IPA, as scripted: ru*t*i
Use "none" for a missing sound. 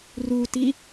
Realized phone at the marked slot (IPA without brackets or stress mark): t